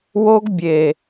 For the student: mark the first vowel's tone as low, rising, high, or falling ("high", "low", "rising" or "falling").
high